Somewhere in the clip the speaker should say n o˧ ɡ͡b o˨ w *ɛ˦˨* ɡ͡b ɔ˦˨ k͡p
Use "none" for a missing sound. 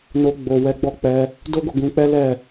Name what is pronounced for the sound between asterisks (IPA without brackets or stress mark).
ɛ˨˦